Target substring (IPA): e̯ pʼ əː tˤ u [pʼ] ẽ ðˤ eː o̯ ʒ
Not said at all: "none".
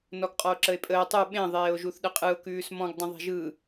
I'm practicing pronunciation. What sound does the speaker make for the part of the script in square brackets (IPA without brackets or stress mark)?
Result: ɓ